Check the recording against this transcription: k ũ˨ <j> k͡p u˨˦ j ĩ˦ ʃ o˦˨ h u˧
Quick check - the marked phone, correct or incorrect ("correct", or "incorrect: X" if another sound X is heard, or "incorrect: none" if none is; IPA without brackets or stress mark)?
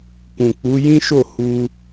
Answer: incorrect: none